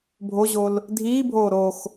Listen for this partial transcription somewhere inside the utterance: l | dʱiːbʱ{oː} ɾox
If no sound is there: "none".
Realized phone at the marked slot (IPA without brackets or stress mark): oː